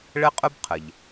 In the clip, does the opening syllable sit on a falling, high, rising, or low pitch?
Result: high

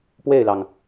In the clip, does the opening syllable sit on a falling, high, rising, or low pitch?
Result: falling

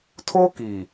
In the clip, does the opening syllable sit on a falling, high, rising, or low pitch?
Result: high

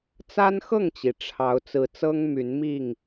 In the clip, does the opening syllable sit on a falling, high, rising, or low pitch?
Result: high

